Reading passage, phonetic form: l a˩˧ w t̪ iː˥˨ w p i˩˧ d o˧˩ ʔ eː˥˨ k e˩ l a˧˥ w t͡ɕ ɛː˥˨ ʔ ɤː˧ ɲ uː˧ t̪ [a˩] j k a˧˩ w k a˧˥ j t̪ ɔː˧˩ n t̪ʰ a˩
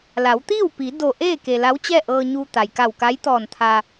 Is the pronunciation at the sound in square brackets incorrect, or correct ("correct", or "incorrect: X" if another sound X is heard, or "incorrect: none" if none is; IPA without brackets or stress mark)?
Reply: correct